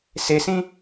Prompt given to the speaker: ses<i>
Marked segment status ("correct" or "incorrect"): incorrect